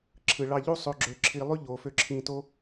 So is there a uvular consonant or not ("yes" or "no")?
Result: no